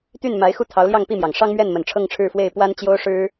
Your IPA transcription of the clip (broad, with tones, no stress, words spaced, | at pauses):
t̪y˥˩nma˧˥ɪ̯ xu˥˩t̪ʰɑ˧˥ʊ̯ljɑ˥˧ŋ pi˥˩mjɑ˨˩ŋ ʂɑ˥ŋmɥɛ˥˩nmə˨˩n ʈ͡ʂʰɤ˥˧ŋʈ͡ʂʰɻ̩˥˧fwe˥˩ɪ̯ pwa˥nt͡ɕjo˥ʊ̯ ʂɻ̩˥